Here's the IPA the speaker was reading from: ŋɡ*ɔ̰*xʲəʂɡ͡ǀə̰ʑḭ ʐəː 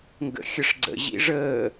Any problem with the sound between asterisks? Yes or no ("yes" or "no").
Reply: yes